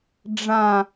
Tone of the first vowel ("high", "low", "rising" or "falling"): falling